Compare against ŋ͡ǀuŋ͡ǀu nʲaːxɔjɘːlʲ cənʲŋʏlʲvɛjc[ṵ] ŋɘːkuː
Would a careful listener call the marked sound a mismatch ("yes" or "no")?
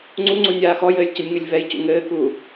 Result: no